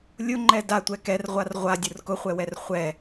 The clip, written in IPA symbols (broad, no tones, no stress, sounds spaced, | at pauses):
lʲ ʊ ŋ͡ǃ ɛ d a tʷ ɛ k ɛ r ʁʷ a r ʁʷ a dʲ ʊ r k ʊ χʷ ɛ w ɛ r χʷ ɛ